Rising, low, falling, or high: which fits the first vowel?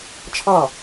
falling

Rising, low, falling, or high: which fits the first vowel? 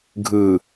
low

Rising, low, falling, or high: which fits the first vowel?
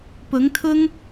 rising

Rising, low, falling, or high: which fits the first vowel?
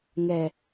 low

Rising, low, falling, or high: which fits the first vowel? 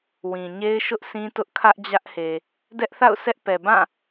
low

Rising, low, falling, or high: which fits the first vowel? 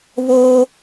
high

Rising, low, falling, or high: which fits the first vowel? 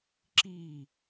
falling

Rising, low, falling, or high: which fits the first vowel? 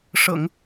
low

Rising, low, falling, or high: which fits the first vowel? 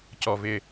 low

